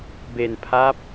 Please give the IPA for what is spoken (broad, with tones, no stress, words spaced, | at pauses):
be˧npʰa˦˥p̚